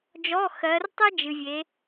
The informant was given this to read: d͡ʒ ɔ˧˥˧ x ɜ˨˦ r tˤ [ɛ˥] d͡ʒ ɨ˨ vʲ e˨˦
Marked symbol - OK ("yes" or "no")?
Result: yes